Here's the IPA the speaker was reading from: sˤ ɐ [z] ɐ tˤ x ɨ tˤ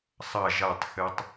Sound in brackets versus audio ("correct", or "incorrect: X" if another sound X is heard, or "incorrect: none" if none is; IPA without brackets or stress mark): incorrect: ʒ